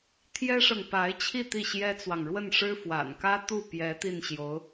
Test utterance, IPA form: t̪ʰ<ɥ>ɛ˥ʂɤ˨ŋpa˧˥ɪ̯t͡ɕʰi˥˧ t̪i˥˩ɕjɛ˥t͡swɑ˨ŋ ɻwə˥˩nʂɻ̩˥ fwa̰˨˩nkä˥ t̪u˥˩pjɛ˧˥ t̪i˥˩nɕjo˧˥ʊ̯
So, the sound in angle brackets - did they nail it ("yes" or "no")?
no